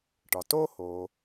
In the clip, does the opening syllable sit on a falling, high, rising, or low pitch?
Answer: low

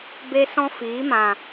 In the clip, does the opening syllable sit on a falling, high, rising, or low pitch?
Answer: high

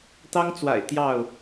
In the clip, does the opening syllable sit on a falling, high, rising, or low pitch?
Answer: high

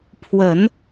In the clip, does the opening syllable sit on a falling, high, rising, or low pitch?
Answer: low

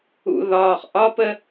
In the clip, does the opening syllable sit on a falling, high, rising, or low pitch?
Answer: low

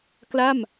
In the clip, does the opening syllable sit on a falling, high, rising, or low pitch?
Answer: falling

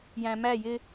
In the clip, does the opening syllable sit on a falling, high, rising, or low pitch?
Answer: low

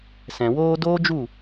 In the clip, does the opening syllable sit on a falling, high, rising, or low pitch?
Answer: low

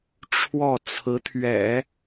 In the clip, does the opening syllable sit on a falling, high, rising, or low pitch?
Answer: falling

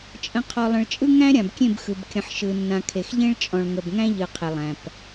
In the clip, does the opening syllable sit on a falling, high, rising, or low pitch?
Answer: low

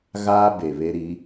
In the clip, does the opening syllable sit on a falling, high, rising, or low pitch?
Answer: high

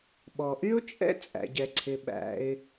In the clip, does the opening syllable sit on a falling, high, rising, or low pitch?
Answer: low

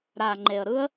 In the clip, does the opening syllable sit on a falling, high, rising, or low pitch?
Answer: low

